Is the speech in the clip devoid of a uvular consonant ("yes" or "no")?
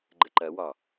yes